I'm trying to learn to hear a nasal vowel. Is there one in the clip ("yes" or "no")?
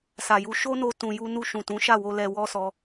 yes